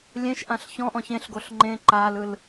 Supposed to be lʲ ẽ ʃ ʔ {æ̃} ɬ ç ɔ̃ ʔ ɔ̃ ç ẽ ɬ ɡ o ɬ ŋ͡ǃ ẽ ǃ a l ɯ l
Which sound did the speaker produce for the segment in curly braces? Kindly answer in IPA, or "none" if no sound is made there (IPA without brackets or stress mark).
ã